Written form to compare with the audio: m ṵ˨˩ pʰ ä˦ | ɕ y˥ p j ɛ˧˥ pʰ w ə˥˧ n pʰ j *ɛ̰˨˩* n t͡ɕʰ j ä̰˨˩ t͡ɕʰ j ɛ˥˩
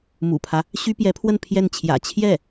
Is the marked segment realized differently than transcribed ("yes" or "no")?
yes